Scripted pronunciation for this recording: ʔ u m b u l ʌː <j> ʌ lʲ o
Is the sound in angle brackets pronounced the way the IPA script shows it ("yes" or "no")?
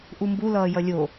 yes